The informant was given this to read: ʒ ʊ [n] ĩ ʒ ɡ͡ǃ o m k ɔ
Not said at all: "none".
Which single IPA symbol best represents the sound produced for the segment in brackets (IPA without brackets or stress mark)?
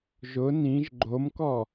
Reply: n